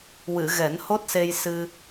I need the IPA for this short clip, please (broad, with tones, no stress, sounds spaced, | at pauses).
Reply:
w ɨ˨˩˨ ɣ ɛ˨˩˦ n h o˦˥ t̚ s e˧ j s ɨ˧